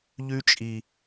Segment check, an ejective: present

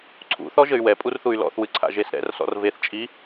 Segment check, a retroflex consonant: absent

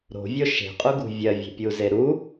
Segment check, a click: absent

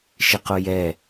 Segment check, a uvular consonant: present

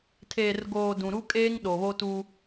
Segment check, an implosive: present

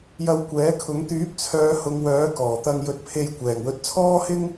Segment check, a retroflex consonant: absent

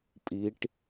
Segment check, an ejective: present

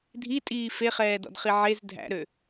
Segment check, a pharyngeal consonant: present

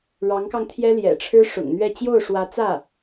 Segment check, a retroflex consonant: present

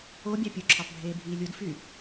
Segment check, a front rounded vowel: present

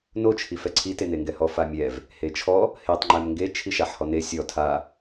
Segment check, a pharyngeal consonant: present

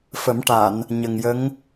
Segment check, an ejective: absent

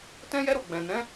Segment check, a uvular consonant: absent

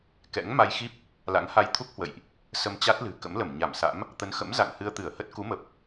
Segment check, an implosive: absent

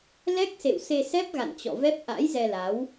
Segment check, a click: absent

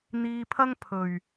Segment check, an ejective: absent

